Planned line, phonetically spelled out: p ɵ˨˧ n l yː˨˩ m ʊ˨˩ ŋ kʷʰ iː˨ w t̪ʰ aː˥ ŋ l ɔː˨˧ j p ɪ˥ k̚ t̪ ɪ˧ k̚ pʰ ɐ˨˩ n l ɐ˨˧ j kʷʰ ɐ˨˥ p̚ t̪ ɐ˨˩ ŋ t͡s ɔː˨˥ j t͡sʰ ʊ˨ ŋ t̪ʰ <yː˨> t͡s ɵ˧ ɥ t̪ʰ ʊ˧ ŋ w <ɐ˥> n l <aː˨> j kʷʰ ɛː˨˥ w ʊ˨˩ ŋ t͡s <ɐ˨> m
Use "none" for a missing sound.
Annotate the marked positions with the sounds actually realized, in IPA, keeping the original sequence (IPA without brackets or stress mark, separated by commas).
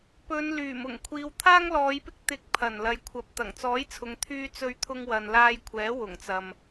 yː˧, ɐ˨, aː˧, ɐ˨